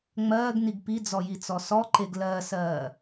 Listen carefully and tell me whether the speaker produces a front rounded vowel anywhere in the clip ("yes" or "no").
no